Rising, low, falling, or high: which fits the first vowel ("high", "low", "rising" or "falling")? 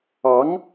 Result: rising